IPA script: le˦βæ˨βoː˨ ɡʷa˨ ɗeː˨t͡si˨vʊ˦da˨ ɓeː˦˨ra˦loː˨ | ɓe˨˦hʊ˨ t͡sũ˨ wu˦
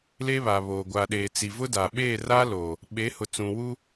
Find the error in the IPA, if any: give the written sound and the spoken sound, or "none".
æ˨ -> a˨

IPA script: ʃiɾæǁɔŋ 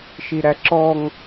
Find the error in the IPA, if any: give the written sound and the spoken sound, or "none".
none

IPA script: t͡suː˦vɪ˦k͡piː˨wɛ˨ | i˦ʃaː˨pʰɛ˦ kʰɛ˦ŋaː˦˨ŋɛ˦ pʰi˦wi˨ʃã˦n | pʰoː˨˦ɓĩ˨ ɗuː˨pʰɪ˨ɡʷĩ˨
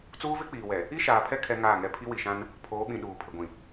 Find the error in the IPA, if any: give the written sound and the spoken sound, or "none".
none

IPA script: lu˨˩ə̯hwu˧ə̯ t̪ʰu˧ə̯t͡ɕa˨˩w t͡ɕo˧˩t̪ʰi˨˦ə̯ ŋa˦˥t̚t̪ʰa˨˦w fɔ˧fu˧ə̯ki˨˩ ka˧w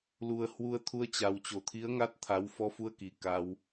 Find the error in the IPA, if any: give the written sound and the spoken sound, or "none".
none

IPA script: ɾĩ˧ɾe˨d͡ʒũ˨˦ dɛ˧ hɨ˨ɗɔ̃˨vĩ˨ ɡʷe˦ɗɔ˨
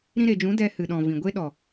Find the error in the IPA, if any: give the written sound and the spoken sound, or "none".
none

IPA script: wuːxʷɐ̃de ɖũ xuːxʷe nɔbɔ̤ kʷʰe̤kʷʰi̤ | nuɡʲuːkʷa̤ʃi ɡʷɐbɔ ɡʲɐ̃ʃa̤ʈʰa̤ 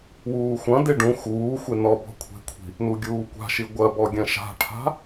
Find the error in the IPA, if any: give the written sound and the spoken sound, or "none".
none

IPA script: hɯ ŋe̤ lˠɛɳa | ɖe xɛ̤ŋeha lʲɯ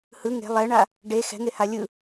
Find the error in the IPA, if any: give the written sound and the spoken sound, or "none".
none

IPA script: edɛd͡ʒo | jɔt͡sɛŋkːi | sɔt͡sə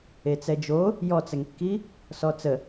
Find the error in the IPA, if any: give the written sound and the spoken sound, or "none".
d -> t͡s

